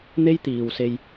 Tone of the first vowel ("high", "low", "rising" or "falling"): high